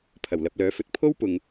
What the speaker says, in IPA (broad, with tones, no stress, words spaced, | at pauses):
pʰɐ˨˩wlɐ˨p̚lœː˨˥fɵ˨t̚ pʰo˥wpʊ˨ŋ